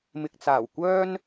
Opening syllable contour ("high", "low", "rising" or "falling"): low